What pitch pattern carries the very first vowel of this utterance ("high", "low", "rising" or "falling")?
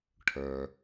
low